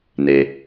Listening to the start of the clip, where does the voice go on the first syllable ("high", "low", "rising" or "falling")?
low